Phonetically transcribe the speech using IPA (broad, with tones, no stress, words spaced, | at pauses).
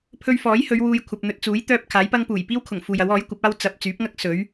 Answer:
pʰɵ˧ɥfɔː˨˥jhɵ˨˧ɥ wuː˧jkʷʰɐ˨p̚ n̪ɵ˨t̚t͡suː˨˥j t̪œː˧p̚ kʰaː˨˥jpɐ˥ŋ puː˨˩j piː˥wkʰʊ˨˩ŋ fuː˨jɐ˨˥w ɔː˨˥jkʷɐ˨˥p̚aː˥w t͡sɐ˨p̚ t͡syː˨˥p̚ŋɐ˥k̚ sɵ˨˥ɥ